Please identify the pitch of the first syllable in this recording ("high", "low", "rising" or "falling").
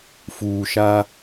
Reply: low